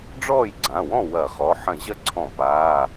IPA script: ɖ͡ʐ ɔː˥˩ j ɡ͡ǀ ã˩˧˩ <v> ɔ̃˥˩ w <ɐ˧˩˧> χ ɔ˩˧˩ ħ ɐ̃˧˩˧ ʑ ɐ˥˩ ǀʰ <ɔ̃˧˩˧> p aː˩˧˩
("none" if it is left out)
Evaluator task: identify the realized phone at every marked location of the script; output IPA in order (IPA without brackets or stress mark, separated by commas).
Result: w, ɐ˧˩˧, ɔ̃˧˩˧